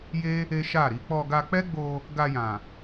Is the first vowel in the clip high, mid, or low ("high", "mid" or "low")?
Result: mid